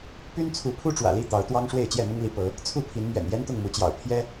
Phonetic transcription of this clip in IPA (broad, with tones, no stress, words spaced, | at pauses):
py˦nt͡sʰu˨˦pʰu˦ ʈ͡ʂwä̰˨˩li˥˨ t̪ɑ˨˦ʊ̯t̪wɑ˦ŋ ʂwe˥˨ɪ̯t͡ɕjɛ˥˨mʊ˦ŋli˨˦ pɤ˨˦ | t͡sʰu˥˨ pʰi˨˦nmɥɛ̰˨˩n jɛ˦nt̪ʊ˥˨ŋmu˨˦t͡ɕjɑ̰˨˩ʊ̯ pʰjɛ˦